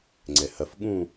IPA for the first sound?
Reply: ŋ͡ǀ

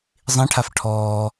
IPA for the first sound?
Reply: zˤ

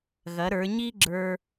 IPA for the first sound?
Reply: ɣ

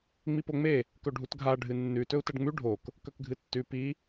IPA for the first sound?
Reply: ŋ͡m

